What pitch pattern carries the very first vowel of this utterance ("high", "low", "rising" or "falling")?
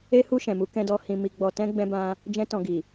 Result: high